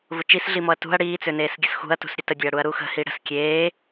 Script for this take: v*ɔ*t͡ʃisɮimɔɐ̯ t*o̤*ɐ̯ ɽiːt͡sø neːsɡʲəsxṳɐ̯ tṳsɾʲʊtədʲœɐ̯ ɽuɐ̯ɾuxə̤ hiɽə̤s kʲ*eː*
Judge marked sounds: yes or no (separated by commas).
no, no, yes